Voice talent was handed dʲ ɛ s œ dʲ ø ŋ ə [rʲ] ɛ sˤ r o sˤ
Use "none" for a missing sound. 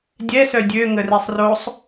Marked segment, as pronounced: r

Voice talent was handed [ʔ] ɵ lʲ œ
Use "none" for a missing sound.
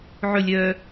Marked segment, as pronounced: ʕ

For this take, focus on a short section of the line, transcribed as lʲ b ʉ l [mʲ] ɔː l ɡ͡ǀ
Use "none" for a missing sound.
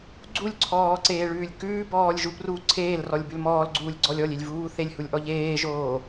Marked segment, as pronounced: m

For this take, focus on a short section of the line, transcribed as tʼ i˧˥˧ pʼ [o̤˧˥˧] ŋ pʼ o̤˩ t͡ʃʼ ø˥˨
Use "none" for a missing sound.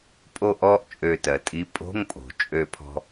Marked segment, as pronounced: o̤˧˥˧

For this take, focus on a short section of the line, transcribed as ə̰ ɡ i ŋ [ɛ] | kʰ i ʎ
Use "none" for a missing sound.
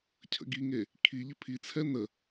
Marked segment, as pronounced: e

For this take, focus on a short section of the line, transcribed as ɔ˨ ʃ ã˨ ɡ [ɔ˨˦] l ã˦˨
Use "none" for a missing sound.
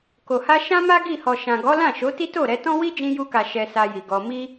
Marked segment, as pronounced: ɔ˨˦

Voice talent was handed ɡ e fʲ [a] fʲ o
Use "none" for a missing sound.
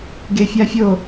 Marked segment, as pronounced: a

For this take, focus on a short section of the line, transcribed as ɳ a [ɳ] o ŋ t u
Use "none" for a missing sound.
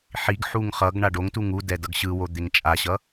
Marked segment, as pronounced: ɖ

